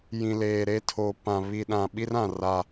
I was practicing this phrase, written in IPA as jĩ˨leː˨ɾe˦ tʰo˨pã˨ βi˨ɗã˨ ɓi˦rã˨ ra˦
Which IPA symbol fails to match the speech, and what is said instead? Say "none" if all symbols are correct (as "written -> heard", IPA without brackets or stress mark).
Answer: none